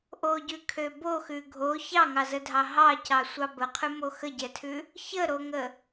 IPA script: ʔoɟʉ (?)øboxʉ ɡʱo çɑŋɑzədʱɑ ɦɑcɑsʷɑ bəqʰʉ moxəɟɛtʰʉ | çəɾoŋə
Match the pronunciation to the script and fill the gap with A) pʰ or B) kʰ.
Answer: B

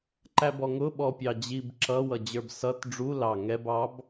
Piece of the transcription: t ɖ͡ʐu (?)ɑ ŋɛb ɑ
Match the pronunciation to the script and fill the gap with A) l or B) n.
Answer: A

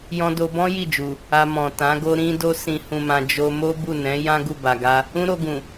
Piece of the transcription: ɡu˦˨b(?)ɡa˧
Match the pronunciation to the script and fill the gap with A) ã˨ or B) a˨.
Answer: B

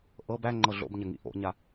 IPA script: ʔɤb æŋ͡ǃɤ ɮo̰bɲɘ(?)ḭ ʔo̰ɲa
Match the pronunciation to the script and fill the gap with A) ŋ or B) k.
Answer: A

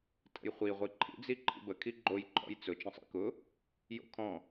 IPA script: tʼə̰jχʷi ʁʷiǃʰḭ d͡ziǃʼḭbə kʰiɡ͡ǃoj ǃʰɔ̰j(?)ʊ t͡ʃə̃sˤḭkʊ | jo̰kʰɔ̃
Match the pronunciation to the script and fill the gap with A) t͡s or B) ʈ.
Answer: A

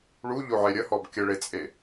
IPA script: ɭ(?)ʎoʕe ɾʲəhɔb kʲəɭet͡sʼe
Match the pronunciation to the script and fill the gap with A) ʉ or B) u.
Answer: B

